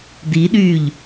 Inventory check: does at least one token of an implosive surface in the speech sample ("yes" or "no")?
yes